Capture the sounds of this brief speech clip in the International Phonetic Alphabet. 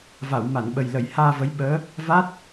va˨˩˨wma˨˩˨nɓə˨˩j lə˨˩˨j haː˧və˧˥j ɓəː˧˥ | va˦˥t̚

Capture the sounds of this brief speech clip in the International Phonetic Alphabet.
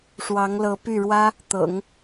ʂwɑ˧˥ŋlɤ˧˥py˥˩ɻwä˥ | t̪ɤ̰˨˩˦ŋ

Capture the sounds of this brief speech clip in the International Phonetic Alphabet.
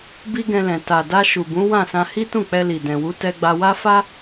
bi˦ɡɛ̃˧lɛ̃˨ ta˨da˧ ʃu˨bũ˨˦wã˦˨sã˧ hi˦tũ˦˨k͡pɛ˧li˨ dɛ̃˨wu˨˦ tɛ˧ɡ͡ba˧wa˦ fa˦

